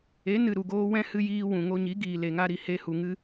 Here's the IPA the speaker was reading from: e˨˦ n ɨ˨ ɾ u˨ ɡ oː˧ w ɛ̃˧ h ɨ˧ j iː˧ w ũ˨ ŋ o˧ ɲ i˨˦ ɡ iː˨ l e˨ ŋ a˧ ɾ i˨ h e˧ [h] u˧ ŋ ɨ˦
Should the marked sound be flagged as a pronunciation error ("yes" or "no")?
no